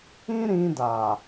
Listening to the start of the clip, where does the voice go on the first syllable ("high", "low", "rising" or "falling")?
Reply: high